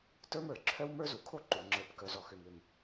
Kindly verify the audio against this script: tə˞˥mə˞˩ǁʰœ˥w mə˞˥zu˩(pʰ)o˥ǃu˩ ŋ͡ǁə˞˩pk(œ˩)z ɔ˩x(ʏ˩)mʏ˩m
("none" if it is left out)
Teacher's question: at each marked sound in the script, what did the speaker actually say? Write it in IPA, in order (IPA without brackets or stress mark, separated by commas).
kʰ, œ˩, ʏ˩